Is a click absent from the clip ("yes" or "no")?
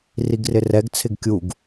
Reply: yes